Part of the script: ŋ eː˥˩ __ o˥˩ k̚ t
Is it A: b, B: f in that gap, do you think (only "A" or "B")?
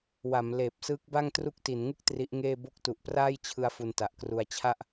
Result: A